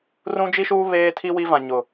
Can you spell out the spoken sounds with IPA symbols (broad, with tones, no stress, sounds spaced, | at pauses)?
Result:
r ũ˦ d͡ʒ i˦ ʃ uː˦ β eː˦ tʰ i˦ w i˦ v ã˨ ɲ ʊ˨